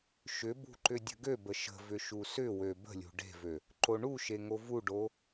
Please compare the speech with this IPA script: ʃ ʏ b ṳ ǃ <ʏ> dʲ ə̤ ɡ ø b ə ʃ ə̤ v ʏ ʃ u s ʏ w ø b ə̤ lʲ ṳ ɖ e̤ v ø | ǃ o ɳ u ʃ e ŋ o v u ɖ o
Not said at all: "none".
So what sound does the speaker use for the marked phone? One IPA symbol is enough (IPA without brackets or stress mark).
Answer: ʏ